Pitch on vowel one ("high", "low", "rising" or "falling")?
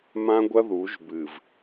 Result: high